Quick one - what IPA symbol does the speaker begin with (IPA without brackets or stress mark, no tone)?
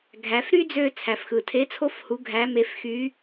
ɡʱ